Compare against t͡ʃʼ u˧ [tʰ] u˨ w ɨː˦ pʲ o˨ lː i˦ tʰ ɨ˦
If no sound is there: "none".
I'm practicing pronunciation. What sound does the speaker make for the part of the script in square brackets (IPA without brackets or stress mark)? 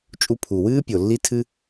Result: pʰ